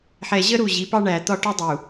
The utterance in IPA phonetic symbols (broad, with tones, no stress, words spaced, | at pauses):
ħɛ˨ʑə˦ ɾu˦˨ʑi˨˦pɑ˦ɳæ˨ t̪ɒ˦ʈʊ˦dˤu˨